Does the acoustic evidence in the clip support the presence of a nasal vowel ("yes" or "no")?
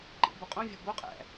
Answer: yes